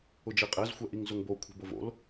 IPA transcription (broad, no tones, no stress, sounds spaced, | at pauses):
ʊ d͡ʒ e qʼ ɛ z xʷ ɛ ʔ i ŋ z ʊ ŋ b o kʷʰ ɛ̤ b o v o̰ l